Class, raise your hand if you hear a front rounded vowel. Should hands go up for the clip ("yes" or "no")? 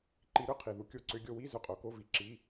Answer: yes